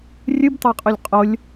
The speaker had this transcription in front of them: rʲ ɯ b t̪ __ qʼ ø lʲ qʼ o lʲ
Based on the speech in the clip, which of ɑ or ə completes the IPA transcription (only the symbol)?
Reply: ɑ